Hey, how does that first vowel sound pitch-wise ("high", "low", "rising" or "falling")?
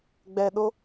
low